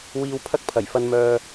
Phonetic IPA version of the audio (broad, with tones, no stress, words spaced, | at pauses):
wiː˧wpʰɐ˥k̚ pʰɐ˨˩jfɐ˧nmœː˧